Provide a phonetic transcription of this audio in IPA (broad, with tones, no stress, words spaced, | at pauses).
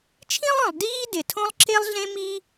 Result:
t͡ʃʰĩ˥lˠœ̃˩lˠ diː˥ dɪ˩ tʰõ˥lˠǁe˥lˠɮẽ˥ miː˥